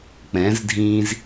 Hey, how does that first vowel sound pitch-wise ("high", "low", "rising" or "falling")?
rising